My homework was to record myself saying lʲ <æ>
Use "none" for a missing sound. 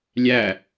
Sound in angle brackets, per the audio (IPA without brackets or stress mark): æ